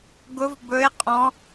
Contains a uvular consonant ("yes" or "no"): yes